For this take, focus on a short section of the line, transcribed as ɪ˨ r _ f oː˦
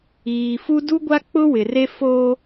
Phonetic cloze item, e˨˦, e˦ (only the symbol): e˦